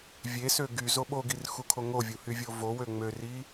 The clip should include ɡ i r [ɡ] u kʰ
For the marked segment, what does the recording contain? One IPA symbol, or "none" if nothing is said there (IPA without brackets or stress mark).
x